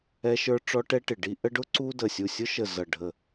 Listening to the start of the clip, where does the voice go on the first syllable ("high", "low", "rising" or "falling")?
high